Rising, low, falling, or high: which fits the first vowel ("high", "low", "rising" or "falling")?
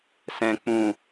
low